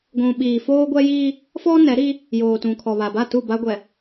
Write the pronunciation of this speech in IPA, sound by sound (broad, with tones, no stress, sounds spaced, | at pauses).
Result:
ɡʷ ũ˨ ɓ iː˨ f oː˦ ɡʷ ɛ˦ j iː˦ | f ɔ˦ n ɛ˨˦ ɾ i˦ | j oː˨ t ũ˨ kʰ ɔ˨ β a˨ b a˦˨ t u˦˨ b a˦ ɡʷ ɛ˨